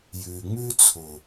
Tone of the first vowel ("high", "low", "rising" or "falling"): low